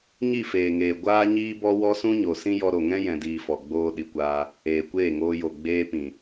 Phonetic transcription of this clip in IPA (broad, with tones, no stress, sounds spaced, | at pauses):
ɲ i˦˨ f eː˨ ŋ eː˨ ɡʷ aː˦ ɲ iː˦ b ɔ˦ w ɔ˦ s ũ˦ ɲ o˨ s ĩ˦ j ɔ˧ ɾ o˨ ŋ ɛ̃˦ j ɛ̃˧ d iː˧ f ɔ˨ ɡ͡b oː˧ ɗ i˨ kʷ aː˧ | eː˨ kʷ eː˦˨ ŋ oː˧ j o˨ ɡ͡b eː˧ p ĩ˨